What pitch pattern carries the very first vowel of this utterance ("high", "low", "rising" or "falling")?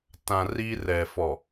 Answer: low